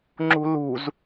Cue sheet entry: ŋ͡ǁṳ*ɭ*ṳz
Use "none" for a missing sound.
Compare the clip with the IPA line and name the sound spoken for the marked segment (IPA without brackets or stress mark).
l